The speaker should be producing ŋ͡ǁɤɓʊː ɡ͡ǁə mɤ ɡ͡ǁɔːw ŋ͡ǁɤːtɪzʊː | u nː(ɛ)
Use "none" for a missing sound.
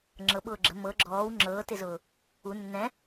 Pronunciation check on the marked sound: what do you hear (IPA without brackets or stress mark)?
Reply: ɛ̃